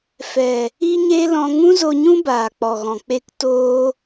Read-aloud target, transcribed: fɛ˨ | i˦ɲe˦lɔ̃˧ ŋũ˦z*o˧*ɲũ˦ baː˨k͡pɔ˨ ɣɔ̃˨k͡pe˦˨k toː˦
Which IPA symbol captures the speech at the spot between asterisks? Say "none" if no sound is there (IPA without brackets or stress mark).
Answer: o˧